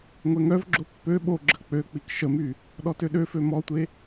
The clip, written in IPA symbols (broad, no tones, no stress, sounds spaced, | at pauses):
ŋʷ ɛ ŋ œ v ɡ͡ǁ o pː ø ɓ o ɡ͡ǁ ə k͡p ø k͡p i k ʃ ə m y | ɗ ɔ t ø ɗ ø f ø m ɔ tʷ e